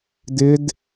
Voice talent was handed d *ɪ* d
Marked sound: correct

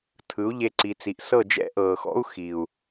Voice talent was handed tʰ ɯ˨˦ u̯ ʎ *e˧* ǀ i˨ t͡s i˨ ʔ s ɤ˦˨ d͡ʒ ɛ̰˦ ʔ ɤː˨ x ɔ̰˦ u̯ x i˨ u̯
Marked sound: correct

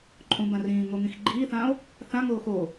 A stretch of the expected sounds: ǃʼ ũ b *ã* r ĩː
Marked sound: correct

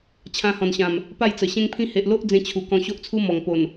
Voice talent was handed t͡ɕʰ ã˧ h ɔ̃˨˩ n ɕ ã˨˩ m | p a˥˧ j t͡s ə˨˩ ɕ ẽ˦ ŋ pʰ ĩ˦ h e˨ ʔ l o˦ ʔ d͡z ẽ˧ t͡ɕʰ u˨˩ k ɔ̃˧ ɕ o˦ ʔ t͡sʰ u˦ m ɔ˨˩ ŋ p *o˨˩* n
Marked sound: correct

